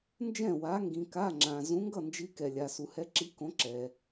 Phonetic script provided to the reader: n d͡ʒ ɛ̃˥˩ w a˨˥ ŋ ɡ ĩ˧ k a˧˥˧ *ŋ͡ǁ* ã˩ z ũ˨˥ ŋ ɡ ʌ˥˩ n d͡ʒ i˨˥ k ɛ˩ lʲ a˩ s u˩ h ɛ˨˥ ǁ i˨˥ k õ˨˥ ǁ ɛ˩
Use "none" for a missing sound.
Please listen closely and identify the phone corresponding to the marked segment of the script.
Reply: ŋ͡ǁ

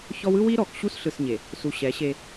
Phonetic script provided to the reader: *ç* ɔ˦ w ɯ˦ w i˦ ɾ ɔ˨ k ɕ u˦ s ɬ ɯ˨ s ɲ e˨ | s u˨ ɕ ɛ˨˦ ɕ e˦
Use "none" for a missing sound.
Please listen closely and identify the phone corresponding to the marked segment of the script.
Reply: ç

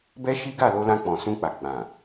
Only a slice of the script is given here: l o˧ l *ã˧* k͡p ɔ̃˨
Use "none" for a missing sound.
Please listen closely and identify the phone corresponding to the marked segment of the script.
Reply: ã˧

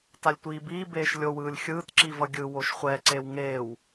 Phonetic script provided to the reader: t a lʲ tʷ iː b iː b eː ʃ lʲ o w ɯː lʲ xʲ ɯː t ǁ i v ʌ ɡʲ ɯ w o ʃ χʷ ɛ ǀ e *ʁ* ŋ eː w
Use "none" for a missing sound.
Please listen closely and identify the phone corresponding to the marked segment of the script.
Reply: w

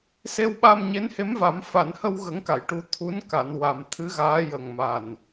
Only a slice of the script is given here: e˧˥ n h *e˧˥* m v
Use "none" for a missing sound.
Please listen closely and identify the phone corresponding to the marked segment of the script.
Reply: e˧˥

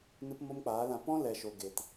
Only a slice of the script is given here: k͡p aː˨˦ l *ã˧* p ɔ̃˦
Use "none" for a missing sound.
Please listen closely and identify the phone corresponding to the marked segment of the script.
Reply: ã˧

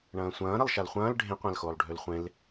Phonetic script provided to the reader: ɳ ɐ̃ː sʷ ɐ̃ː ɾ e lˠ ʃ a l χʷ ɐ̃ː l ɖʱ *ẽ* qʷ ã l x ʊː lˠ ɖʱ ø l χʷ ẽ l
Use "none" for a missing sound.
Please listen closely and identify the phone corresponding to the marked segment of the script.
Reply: ẽ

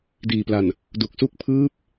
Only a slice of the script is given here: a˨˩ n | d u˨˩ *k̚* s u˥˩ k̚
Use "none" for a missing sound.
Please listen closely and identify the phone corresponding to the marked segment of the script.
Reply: k̚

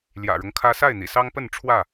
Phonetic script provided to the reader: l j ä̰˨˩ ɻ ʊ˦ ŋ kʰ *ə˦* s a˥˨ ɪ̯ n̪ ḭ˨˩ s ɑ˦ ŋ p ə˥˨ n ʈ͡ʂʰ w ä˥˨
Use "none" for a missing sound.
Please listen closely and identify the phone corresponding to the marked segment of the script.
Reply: ä˦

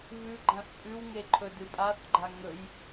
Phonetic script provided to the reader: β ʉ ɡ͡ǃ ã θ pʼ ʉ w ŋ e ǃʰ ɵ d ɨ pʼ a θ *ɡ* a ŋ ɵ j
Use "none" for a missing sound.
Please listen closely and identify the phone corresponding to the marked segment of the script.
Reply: ɡ͡ǃ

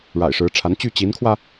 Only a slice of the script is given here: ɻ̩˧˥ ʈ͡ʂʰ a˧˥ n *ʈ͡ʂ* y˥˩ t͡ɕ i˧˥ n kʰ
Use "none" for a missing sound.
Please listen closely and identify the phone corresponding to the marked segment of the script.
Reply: t͡ɕ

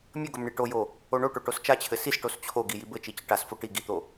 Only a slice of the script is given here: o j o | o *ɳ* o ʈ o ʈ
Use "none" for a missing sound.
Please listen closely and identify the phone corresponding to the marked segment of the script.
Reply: ɳ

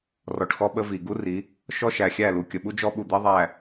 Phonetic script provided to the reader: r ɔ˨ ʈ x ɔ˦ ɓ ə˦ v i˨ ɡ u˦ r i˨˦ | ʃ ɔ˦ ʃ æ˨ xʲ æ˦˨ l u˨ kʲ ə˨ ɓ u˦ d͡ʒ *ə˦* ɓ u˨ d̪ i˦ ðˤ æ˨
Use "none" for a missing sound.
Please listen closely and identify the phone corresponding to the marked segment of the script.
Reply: ɔ˦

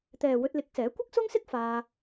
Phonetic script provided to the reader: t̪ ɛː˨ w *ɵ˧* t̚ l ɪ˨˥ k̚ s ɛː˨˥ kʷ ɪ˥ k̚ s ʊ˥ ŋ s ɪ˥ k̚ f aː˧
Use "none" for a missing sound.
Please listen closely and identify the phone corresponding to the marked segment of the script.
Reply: ɵ˧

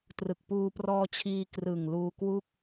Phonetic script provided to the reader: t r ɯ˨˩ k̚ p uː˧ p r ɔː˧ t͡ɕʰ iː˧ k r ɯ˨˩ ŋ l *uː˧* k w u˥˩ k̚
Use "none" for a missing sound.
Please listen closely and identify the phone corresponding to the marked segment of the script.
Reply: uː˧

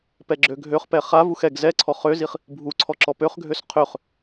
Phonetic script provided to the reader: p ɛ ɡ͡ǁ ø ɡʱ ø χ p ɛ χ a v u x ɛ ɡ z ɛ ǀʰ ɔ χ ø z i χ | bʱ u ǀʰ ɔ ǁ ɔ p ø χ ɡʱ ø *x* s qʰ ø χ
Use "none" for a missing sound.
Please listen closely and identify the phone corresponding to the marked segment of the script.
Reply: none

